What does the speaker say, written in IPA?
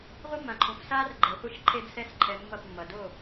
ʁʷ ɯ˦ mː ã˨ ǃʰ õ˨ f s aː˦ r ɡ͡ǃ ɛ˨ χʷ i˧ ʃ ǃʰ e˦ d s ɛ˦ s ǃʰ ɛ˧ mː ʌ˦˨ p mː ʌ˨ d o˦˨

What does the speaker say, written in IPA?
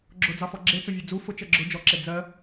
ɡ͡ǁ ʊ d͡z ɑ f ɔ ɡ͡ǁ e t͡s o vʲ e d͡z u f ʊ t͡ʃ ɜ ɡ͡ǁ ʊ d͡ʒ ɔ ǁ e d͡z ɜ

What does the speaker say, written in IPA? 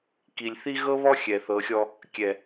k i˨ lʲ θ i˦ ɣ ɤ˦ β ɔ˦ xʲ ɛ˨ θ ɤ˨˦ xʲ ɔ˦ | kʲ ɛ˨

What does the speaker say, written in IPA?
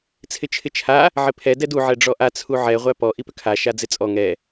t͡sʰ ɪ t͡ʃʰ ɪ t͡ʃʰ a | ʕ ɪ pʰ ɛ d ɛ d u ʕ ɛ ɖ͡ʐ ɔ ʔ a t͡sʰ u ʕ ɛ ʁʷ æ p ɔ ʔ i p ʏ kʰ a ʃ a d͡z ɪ t͡sʼ ɔ ŋ ɛ

